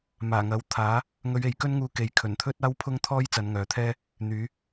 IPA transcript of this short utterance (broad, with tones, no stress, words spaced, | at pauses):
maː˨˩ŋɐ˨˥w t̪ʰaː˨˥ | ŋɵ˨˧ɥe˨jkɵ˥nŋuː˧ ke˨jkʰɵ˨˩nt̪ʰɵ˥t̚ aː˥wpʰʊ˥ŋt̪ʰɔː˥j t͡sɐ˨˧nŋœː˨t̪ʰɛː˥ | n̪yː˨˧